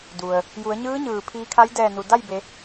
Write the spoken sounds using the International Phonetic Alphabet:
d u˩ ə̯ | j u˩˧ ə̯ ɲ ɯː˧˥ ɲ ɯː˩ pʰ iː˧ kʰ a˧˥ j d ɛː˧˩ n u˩ d a˥˨ j b e˩˧

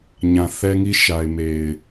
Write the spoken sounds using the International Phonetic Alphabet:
ɲ ã˨ θ ɛ˦ ŋ i˦ ʃ a˨ ɪ̯ m e˨ ɪ̯

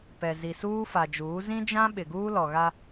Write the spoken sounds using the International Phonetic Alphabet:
p ɛ˨ z i˨ s uː˦ f a˨ d͡ʒ uː˨˦ z ĩ˦ d͡ʒ ã˦ ɓ ɪ˨ ɡ uː˦ l ɔ˨ ɣ a˦

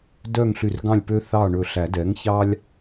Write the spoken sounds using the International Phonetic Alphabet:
d œ˥˨ ŋ ɬ y˧˩ r ɡ ɑ̃˥˨ lʲ p ø˦ θ ɑ˥˨ ɳ ɵ˧˩ ɬ æ˨˩˦ d ɛ˩˥ ŋ ç ɑ˦ lʲ

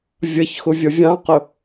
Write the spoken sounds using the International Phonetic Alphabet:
vʲ ʌ ç x ʊ vʲ ʌ vʲ ɑ̃ q ʊ

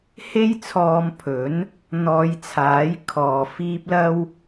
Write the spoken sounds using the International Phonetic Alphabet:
h e˥ j t͡sʰ ɔː˧ m pʰ ɵ˨˥ n | n̪ ɔː˨˧ j t͡sʰ aː˨˥ j kʰ ɔː˨ f iː˥ p̚ l ɐ˧ w

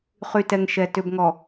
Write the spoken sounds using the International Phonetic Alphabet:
χ y˨ t ɛ˨ ŋ ʃ ɛ˨ t ʏ˨ b ŋ ɔ˨

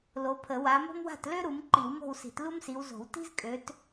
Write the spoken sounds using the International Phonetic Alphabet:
l o˨˦ pʰ ə˨˩˦ w a˨˦ m o̤˥ m w a̤˥˨ t l ø˥ ɾ u˨˦ m ǃ i˨˩˦ w m o̤˥˨ w s i̤˨˩˦ t l u˥ m s i˨˦ w z o̤˨˩˦ w t i̤˥ z kʼ ø˨˦ t

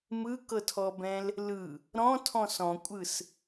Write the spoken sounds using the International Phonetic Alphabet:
m ɯ k ɤ tʰ ɔ b ɛ̃ l | l ɯ | ɾ ɔ̃ tʰ ɔ̃ s ɔ̃ kʷʼ ɯ s

